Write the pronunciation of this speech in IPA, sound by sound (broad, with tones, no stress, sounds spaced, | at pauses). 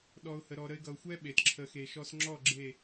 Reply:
ɗ ɔ˨ ʊ̯ h ə˨ ɾ ɔ˨ ɾ ə˧ ɪ̯ ɡ ʌ˨ ʊ̯ xʷ ɛ˦ ɓ e˨ t ǁʰ ə˧ x e˨ ʃ ɔ˧ s ŋ͡ǁ ɔ˦˨ ɡ͡ǁ e˦˨